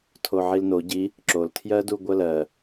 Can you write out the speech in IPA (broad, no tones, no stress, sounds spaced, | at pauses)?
tʰ o ʕ i l n o ɟ i | ǁ o l tʰ j ɜ d u ɡʷ ɜ l ɜ